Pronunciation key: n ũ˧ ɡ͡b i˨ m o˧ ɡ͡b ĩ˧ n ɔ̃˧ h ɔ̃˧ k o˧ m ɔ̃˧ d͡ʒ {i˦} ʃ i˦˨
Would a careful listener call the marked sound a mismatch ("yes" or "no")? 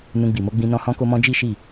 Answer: no